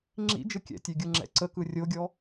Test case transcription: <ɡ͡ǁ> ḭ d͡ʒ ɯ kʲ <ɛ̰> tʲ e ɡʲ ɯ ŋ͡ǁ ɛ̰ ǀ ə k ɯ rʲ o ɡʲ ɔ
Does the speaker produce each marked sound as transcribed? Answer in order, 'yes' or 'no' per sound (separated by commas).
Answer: no, yes